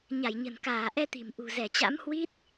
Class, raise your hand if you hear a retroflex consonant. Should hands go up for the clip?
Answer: no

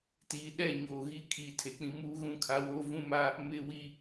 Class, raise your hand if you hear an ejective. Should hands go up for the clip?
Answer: no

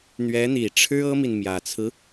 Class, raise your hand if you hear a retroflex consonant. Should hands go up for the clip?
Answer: yes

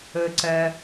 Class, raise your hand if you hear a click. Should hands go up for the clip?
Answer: yes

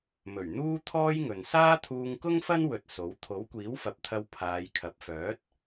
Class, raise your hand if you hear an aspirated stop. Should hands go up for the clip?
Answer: yes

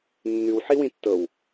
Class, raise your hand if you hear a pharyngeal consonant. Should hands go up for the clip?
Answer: yes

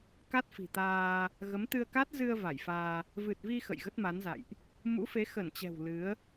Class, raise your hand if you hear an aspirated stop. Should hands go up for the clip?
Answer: no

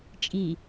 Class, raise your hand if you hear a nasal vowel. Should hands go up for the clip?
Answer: no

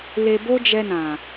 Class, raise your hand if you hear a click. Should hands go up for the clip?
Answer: no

